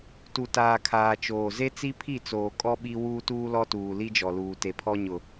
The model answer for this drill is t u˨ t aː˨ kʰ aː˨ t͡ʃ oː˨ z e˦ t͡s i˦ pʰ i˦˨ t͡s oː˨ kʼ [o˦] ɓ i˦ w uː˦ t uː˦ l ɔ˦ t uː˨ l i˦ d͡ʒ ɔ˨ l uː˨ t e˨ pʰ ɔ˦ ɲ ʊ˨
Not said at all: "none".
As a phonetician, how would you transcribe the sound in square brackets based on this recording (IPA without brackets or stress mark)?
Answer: ɔ˦